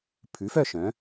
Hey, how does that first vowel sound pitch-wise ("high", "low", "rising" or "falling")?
rising